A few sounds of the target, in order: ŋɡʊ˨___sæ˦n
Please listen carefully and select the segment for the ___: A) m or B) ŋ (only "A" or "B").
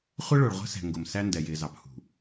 A